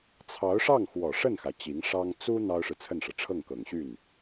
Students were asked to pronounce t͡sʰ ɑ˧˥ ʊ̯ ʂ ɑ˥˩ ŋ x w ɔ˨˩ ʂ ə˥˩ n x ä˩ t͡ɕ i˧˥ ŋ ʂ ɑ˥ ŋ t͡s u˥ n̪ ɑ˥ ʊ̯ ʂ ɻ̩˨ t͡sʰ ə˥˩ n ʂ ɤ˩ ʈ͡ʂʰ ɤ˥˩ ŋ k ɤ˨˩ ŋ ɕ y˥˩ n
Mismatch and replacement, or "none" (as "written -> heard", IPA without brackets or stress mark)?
none